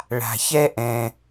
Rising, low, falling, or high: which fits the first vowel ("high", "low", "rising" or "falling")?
low